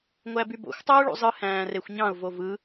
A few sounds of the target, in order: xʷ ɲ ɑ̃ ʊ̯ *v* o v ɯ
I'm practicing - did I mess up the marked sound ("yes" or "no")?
no